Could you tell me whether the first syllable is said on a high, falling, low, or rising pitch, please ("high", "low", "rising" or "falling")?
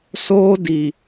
high